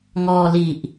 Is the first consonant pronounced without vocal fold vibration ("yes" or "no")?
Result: no